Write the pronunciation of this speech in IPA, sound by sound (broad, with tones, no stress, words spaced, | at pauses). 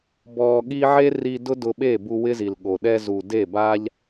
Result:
bɔː˧ɠi˦ ʕe˦ri˧ dʊ˦dʊ˧ɓe˦˨bu˧ wɪ˦zi˨lɠo˨ ɗɛ˧zu˨ de˦˨ba˦ʎ